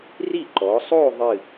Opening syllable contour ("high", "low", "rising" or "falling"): falling